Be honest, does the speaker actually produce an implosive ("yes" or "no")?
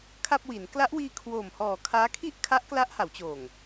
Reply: no